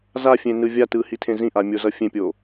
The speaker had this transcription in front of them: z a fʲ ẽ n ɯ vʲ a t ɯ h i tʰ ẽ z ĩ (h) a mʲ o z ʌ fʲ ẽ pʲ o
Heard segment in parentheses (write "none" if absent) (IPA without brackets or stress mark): ʔ